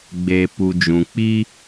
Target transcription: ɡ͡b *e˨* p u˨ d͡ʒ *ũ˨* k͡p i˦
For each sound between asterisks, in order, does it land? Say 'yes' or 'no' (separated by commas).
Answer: yes, yes